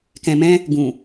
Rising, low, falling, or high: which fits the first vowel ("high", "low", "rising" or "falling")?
low